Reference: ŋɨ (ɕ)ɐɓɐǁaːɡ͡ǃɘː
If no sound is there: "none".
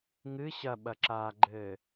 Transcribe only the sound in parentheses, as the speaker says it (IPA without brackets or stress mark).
ɕ